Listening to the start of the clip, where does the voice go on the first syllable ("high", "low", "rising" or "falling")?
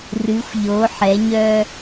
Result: rising